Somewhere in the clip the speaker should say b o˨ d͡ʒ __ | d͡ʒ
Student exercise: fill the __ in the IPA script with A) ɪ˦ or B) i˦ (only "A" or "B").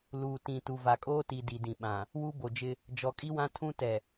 A